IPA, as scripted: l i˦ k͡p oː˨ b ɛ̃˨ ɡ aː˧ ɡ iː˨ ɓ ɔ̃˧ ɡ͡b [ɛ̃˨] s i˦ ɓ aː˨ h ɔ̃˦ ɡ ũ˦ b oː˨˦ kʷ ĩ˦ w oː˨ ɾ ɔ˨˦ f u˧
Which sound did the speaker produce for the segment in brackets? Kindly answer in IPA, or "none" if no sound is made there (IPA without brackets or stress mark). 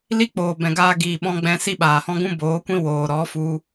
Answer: ɛ̃˧